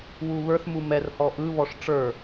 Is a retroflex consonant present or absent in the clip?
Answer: present